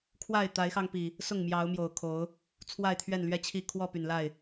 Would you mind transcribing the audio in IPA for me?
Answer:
kʰ w a˥˨ ɪ̯ t̪ a˨˦ ɪ̯ x ɑ˧ ŋ p i˨˩ | s ʊ˥˨ ŋ m j ɑ˨˦ ʊ̯ m j o˨˩ ʊ̯ kʰ o˨˦ ʊ̯ | t͡sʰ w a˥˨ ɪ̯ t̪ʰ ɥ ɛ˥˨ n l ɥ ɛ˥˨ t͡ɕʰ i˥˨ kʰ w ɔ˥˨ p y˨˩ n l a˥˨ ɪ̯

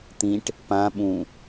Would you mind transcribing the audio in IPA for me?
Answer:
t̪ ĩ ʈ | p ã ɓ ũ

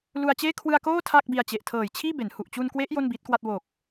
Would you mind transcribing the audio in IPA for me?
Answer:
l u˧ a̯ t͡ɕ eː˥˩ kʰ w ɯ˧ a̯ k oː˥˩ tʰ a˥˩ k̚ b i˧ a̯ t͡ɕ e˨˩ ʔ tʰ ɤː˨˩ j t͡ɕʰ iː˥˩ b e˩˦ n h u˨˩ ʔ t͡ɕ u˧ n k w e˦˥ ʔ j o˥˩ n b iː˦˥ t̚ k w a˥˩ t̚ w o˨˩ k̚

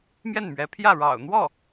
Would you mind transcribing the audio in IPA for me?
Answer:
m j ɛ˥˩ n m ɥ ɛ˧˥ pʰ j ä˥˩ ɻ ɑ̰˨˩ ʊ̯ n̪ w ɔ˥˩

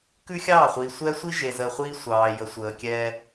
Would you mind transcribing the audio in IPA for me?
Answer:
k ʉ˦ xʲ ɑː˦˨ χʷ iː˨ sʷ ɛː˦ sʷ i˦ ʒ e˨ z əː˨ χʷ iː˦ sʷ ɑː˨ j ə˨ sʷ əː˨ kʲ ɛː˦

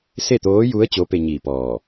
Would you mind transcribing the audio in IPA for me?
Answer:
s e˥˨ t̪ oː˧˥ j u˧˥ ə̯ t͡ɕ o˧˥ p e˧ ɲ iː˧˩ p ɔː˧˩

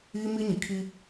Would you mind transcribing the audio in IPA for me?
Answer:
iː˦ m i˦ ɲ i˨ kʰ i˦

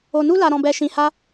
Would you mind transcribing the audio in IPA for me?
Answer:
o˧ n u˦ l a˧ ɾ ɔ̃˧ b ɛ˧ ʃ ĩ˧ h a˦

